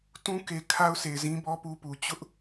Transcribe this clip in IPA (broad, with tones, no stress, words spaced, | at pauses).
tũ˦ke˨ kʰa˦ʊ̯se˨ɪ̯ zĩ˦bɔ˦ pu˦pu˨ t͡ɕʊ˦ʔ